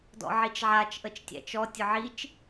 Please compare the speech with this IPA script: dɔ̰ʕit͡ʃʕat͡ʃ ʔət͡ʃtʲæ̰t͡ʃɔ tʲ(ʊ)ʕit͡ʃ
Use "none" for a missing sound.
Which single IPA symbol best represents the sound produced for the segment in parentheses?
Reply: ʊ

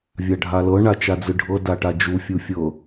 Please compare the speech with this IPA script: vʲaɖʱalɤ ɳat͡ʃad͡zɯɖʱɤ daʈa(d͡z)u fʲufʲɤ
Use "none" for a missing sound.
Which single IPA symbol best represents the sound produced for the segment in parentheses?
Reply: d͡ʒ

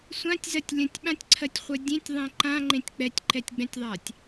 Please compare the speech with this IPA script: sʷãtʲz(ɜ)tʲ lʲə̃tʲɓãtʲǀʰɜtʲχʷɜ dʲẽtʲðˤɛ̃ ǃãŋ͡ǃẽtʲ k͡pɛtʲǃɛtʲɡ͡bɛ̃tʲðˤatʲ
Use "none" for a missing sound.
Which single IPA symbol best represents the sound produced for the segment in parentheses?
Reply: ɜ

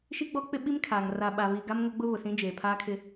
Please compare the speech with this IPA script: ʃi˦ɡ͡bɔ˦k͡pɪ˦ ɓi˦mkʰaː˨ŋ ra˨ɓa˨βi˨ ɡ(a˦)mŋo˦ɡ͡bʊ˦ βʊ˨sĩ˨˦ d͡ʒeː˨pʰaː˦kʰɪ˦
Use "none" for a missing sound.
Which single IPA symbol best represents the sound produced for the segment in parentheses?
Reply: a˦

